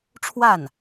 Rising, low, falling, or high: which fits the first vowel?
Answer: falling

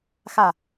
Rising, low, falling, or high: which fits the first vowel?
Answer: falling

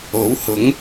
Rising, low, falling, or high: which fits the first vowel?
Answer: rising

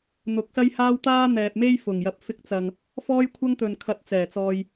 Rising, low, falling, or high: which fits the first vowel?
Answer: rising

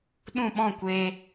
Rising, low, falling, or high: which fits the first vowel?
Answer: falling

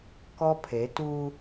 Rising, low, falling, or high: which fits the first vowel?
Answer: high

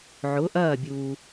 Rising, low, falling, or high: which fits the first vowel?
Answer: rising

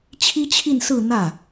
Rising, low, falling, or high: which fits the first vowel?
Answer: high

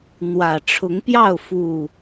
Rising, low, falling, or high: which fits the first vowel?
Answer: low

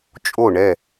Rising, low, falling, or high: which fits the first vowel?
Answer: falling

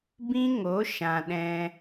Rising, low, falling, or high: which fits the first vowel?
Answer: high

